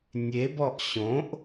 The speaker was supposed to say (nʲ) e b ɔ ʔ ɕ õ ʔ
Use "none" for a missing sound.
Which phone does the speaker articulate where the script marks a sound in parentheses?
nʲ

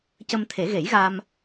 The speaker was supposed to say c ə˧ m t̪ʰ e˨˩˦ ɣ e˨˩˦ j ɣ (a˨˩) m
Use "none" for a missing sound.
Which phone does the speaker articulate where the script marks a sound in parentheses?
a˧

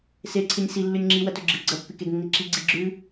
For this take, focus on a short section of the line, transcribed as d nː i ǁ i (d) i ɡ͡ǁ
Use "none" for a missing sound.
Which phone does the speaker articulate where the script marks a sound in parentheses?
ɡ͡ǀ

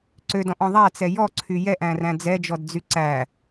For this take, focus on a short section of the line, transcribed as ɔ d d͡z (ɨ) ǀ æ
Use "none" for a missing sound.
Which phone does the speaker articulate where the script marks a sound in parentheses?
y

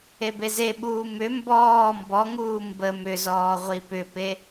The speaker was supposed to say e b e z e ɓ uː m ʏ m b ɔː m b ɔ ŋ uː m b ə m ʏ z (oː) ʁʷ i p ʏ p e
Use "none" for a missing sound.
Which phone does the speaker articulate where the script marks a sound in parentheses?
ɔː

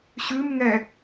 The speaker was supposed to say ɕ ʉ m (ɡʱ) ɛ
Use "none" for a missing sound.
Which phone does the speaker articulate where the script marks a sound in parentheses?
ŋ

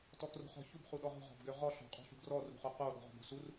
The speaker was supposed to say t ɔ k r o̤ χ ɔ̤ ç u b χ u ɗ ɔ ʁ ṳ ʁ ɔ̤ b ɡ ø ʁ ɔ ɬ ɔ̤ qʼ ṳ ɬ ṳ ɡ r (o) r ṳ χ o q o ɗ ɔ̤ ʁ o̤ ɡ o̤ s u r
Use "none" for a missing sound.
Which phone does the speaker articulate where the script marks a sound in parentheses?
ɔ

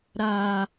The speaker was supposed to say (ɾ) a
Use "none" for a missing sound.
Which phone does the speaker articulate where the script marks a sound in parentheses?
ɾ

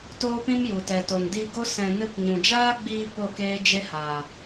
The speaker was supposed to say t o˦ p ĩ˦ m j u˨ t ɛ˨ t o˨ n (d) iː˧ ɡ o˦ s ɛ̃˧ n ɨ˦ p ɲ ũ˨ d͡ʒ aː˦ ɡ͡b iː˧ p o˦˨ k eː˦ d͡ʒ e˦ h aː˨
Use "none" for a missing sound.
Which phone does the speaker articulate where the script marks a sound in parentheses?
d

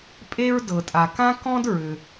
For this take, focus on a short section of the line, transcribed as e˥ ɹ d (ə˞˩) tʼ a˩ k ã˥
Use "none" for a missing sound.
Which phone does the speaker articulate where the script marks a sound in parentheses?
ɤ˩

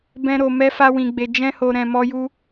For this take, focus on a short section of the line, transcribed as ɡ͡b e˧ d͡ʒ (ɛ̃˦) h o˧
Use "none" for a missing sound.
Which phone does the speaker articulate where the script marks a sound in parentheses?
ɛ̃˦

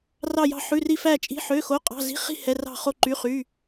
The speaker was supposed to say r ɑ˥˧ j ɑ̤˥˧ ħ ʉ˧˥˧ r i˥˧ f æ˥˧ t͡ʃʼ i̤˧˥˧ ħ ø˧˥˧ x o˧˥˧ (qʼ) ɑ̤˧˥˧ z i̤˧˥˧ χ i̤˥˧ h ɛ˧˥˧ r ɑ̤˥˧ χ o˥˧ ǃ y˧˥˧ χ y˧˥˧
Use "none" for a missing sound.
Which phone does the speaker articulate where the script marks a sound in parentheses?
qʼ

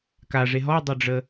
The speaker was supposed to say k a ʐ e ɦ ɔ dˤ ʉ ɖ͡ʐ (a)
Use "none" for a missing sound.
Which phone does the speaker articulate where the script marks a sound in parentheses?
ə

